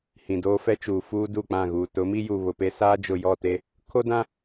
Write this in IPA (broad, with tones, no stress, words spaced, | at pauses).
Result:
hĩ˨doː˦fɛ˦ t͡ʃuː˨fuː˦ du˦˨k͡pã˦˨ɣuː˨ tʊ˨˦mi˦juː˨ βʊ˨pe˦ saː˦d͡ʒʊ˨ jɔ˦˨te˦ | kʰo˦dã˦